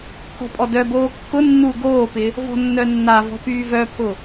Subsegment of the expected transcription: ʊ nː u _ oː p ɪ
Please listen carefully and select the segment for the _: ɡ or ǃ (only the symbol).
ɡ